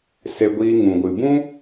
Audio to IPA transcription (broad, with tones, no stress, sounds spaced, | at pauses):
s e˧ ɡʷ iː˧ ŋ ũ˨ ɡʷ ɨ˨ b ũ˦